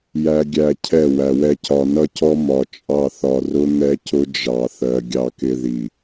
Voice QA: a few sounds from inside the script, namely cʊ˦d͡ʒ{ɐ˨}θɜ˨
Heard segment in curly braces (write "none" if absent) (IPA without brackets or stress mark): ɑ˨